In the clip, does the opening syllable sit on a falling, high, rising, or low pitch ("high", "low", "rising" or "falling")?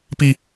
high